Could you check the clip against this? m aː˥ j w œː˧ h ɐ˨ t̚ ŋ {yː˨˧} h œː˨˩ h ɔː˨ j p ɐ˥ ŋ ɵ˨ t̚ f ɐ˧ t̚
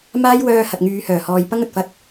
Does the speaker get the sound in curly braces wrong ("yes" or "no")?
no